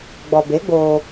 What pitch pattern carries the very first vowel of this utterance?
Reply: low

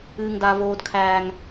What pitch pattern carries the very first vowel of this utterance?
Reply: high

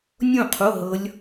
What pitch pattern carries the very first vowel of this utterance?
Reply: falling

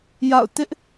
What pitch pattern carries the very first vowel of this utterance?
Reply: falling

